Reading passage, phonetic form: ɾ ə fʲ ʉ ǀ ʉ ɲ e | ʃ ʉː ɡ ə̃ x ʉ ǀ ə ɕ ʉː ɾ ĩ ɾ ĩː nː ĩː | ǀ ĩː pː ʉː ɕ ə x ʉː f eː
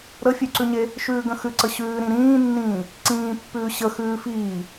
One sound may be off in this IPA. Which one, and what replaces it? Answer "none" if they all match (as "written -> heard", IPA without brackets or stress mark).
eː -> iː